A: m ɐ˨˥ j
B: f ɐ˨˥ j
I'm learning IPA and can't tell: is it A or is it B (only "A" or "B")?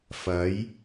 B